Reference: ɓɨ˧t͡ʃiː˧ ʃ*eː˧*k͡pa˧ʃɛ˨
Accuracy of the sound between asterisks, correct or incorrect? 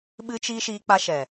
incorrect